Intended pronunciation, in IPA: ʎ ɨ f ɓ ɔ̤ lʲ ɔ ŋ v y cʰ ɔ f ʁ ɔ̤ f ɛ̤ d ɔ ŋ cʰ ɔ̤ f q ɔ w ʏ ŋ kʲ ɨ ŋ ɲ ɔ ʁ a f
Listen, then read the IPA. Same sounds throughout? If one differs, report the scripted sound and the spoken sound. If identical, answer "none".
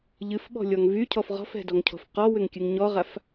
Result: none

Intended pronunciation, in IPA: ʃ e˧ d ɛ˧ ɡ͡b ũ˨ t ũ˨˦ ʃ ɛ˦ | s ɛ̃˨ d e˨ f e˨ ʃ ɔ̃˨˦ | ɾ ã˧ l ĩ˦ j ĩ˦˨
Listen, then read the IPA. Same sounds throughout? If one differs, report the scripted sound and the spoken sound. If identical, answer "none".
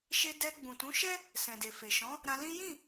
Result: none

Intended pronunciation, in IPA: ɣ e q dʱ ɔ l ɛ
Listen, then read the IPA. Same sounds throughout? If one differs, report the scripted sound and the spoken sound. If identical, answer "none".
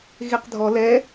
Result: none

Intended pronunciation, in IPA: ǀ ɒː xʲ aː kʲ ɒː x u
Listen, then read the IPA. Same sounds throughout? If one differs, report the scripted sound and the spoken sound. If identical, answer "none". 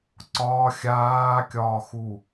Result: none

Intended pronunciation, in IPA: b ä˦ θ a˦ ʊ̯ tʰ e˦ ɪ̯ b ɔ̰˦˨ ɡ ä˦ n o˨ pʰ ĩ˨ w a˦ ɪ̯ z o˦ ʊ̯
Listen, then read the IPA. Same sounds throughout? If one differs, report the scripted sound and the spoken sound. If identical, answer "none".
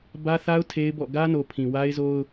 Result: none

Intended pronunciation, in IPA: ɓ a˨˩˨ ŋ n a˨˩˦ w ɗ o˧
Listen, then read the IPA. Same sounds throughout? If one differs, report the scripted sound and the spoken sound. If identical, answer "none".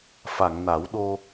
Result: ɓ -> f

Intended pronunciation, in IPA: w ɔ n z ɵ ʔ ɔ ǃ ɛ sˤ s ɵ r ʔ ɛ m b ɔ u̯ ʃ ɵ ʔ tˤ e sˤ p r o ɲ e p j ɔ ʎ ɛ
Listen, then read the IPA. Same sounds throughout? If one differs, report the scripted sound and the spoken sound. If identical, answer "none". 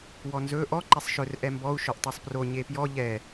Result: s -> ʃ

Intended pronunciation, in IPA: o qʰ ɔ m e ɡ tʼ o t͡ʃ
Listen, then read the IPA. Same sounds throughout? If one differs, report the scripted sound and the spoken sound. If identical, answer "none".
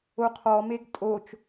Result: none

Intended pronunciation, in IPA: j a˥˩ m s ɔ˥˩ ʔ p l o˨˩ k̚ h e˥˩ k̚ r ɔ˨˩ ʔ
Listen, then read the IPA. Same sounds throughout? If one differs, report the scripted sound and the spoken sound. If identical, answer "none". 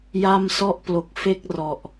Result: h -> f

